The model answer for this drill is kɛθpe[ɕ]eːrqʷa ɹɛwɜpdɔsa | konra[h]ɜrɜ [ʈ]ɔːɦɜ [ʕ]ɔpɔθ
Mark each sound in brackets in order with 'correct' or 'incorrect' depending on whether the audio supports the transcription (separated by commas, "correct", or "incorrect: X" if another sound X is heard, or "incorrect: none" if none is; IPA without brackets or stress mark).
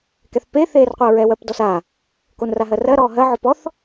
incorrect: θ, incorrect: ɦ, incorrect: ɾ, correct